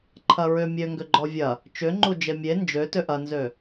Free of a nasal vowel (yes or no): yes